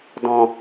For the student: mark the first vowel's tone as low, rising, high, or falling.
low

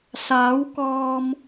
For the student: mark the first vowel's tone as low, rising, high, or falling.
rising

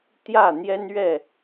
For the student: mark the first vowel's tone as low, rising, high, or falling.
falling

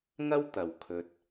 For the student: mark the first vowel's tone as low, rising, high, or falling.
high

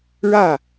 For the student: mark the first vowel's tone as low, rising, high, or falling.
falling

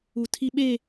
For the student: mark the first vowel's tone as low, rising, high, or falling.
low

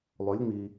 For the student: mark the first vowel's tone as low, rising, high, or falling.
rising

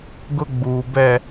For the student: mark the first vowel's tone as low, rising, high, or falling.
high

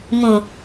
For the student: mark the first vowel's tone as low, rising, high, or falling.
low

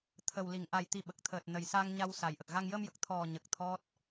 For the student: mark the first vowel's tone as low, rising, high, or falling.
low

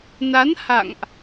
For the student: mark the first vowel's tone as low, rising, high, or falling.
rising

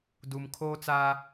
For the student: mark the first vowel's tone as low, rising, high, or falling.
low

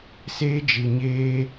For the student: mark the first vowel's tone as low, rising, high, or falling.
high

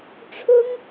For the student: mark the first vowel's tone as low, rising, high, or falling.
high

